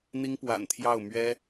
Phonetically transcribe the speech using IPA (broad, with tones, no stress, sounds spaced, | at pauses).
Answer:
n̪ i˥ ŋ p w a̰˨˩ n t̪ʰ j ɑ˥˩ ʊ̯ m ɥ ɛ˥